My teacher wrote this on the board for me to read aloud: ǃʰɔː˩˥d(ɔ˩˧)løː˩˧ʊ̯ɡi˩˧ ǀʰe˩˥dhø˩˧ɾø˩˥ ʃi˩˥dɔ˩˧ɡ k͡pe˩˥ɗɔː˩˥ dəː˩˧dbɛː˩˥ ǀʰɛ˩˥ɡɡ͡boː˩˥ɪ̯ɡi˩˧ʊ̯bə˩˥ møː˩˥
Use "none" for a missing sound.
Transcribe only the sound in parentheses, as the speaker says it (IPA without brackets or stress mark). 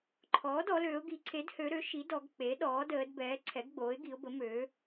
ɔ˩˧